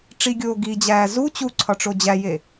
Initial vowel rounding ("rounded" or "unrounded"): unrounded